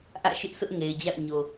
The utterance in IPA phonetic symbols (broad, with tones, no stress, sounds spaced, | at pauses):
ʔ ä̰˦˨ ʃ ɪ˦ ʔ s ʊ˦ ʔ ŋ e˨ ɪ̯ d͡ʑ a̰˦˨ ʊ̯ ɲ o˨